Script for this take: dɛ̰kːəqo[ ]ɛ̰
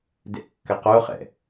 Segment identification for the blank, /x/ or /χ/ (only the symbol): χ